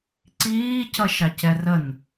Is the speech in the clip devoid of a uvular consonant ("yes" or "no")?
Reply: yes